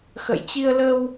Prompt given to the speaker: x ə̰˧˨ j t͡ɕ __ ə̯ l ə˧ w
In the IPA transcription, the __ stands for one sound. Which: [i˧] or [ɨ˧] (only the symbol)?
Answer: i˧